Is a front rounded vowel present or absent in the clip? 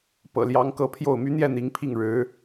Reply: present